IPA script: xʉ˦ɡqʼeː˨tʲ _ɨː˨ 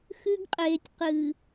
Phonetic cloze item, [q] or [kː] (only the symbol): q